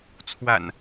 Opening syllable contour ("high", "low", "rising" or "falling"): low